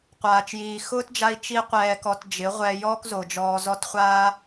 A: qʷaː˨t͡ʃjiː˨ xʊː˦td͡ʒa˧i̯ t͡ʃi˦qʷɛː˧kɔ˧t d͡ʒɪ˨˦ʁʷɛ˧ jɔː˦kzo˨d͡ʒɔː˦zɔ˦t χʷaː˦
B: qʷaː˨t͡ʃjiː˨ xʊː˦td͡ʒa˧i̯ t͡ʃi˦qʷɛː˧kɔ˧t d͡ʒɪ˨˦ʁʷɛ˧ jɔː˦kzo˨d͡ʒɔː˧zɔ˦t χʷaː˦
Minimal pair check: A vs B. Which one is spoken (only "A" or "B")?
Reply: B